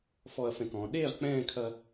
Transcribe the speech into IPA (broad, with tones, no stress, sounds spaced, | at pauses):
f ɔ˧ ɐ̯ f ɛ̃˧˩ k ɔ̃ː˩˧ ɗ eː˥˧ ʁ k͡p ɛ̃ː˥˧ kʰ ɐ˧